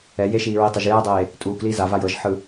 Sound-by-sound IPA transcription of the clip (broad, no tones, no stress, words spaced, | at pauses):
ɛ jeʃiːɹi tˤaʒjɛːdˤeː | tʼuːkliː za vajɤʒħɯ